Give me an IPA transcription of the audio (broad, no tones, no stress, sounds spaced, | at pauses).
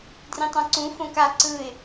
d r ĩ tˤ ã ǀ ũ f õ k a ǀ ɯ ɪ̯